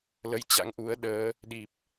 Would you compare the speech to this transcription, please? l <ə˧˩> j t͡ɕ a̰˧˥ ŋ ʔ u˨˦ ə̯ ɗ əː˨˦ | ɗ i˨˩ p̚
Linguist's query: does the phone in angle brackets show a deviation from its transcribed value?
yes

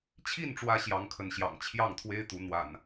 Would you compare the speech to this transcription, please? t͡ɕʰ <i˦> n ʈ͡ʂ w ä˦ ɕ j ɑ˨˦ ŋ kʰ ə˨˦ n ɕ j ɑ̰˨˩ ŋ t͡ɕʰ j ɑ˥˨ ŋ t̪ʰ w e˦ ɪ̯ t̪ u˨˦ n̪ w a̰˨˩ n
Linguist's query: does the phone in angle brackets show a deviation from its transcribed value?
yes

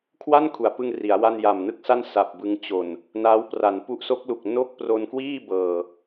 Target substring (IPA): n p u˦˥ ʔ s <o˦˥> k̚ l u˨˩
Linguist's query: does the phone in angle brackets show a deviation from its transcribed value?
no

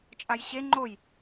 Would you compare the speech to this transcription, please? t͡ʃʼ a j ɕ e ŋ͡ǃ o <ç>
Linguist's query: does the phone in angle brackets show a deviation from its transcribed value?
yes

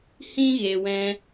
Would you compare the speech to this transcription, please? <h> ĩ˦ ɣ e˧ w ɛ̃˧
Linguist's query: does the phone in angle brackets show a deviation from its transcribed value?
no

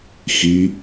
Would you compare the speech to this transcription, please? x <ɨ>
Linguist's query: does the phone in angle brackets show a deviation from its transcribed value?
yes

